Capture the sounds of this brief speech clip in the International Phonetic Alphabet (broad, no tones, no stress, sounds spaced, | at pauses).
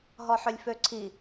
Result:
ɦ ɔ ħ ʏ lʲ f ø ǀʰ i